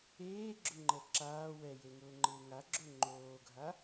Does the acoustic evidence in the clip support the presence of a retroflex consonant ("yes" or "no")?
no